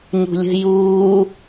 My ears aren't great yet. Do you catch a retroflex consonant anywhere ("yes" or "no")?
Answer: no